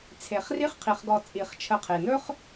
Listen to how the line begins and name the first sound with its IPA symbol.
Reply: t͡sʰ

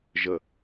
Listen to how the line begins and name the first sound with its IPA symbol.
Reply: ʒ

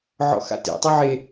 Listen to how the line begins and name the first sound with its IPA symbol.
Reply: ʕ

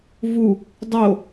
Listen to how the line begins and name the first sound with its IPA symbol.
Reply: v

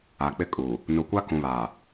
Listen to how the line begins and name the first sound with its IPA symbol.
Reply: a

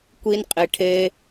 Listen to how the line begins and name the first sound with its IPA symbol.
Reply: kʷ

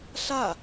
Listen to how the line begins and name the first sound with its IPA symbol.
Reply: ɬ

